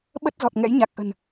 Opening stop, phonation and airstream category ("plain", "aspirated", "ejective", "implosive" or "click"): implosive